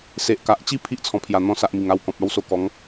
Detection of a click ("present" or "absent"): absent